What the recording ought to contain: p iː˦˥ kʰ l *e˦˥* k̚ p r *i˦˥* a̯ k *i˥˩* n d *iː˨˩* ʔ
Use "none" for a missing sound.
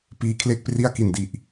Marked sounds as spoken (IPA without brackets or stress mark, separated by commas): e˥˩, i˥˩, i˨˩, i˨˩